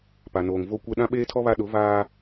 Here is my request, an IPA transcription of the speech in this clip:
p a˨ n oː˨ ŋ v o˦ kʷ ɛ˦ ɗ ã˦ ɓ eː˦ tʰ ɔ˦ β a˦ ɗ ʊ˨˦ v aː˦

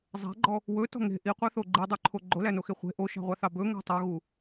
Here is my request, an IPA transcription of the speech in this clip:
zˤ æ̤ ɡ͡ǃ ɔ | w ɵ t ɔ̤ ŋ e̤ ʔ i qʷ ɑ θ o ɡ͡ǃ i dˤ y ǃʰ o ɡ͡ǃ o l æ n o x e χʷ e̤ ʔ o ʃ ɑ̤ ʁʷ ɑ θ ɑ b ɵ ŋ æ̤ tˤ o ɣ u

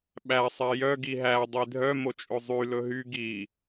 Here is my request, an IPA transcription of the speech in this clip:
ɓ æ sˤ ɛ j œ ɡ i ɦ æ dˤ i dʱ œ m o t͡ʃʼ ɵ zˤ y l ɵ ɦ y ɡ i

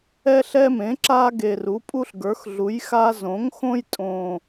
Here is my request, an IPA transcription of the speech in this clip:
ɛ˦ ɬ ɛ˦ m ẽ˩˥ ǁ a˦ ɡ e˨˩ r u˩˥ pʼ u˦ ɬ ɡ ə˞˩˥ x ɮ u˩˥ j x a˦ z õ˩˥ ŋ x õ˦ j tʼ õ˨˩

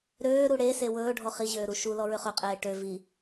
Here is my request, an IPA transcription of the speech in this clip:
ɾ øː ɾ u ɽ e s e w ɵː ɖʱ ɔ χ i ʑ øː ɾ u ʃ u l ɔ ɹ ø χ ɵ qʼ eː ʈ ø v i

